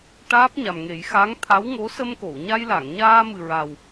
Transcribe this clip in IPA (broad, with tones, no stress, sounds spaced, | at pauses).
ʈ aː˦˥ p̚ ɲ a˨˩ m ŋ e˨˩˦ j x a˧˥ ŋ t̪ʰ a˧˥ w ŋ o˧˥ s ə˧ m k o˨˩˨ w ɲ a˧ j l a˨˩˨ ŋ ɲ aː˧ m ɨ˨˩ ɹ a˨˩ w